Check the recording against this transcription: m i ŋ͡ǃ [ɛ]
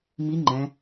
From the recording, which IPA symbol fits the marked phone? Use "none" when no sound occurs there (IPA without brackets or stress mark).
ɛ̃